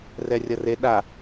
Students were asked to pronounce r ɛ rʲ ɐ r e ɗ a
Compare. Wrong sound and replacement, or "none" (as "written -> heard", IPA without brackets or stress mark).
none